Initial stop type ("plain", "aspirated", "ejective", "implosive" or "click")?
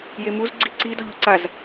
click